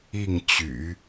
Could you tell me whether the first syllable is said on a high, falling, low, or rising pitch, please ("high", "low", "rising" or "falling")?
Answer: falling